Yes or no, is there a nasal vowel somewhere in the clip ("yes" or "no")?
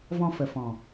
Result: yes